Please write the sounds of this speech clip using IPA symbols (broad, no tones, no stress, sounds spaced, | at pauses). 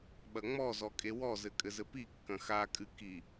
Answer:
ɓ ɐ ŋ͡m ɔ z ɔ kʼ e w ɔ z ɘ kʼ ɘ z ɘ p i kː ɐ̃ x a kʼ ɨ k i